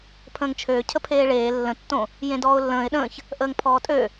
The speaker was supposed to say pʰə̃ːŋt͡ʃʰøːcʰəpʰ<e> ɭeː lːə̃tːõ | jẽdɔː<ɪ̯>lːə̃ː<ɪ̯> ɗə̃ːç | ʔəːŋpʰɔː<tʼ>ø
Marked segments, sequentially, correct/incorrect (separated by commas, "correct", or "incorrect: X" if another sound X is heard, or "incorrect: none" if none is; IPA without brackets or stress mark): incorrect: eː, incorrect: ʊ̯, correct, correct